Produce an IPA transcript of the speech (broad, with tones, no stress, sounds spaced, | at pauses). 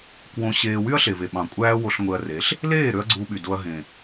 k w õ˧ ɕ eː˧ w y˦ ɐ̯ ɬ e˨ v e˨ ɓ ɑ̃˨ kʷʼ æː˦ w o˧ ɬ ŋʷ e˧ ɐ̯ r e˨˦ ɬ | l eː˦˨ ɾ ø˧ ɐ̯ ɡ͡ǀ uː˧ ɓ y˨ d o˧ ɐ̯ ɦ ẽ˨